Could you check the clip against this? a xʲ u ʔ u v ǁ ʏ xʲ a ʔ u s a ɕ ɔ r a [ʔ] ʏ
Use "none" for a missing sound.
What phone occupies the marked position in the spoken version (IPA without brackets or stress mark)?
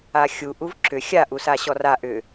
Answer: ʔ